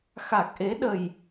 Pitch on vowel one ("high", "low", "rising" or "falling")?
low